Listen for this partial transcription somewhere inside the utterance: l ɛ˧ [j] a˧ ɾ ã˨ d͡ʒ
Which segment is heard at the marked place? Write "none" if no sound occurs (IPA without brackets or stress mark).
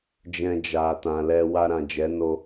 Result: w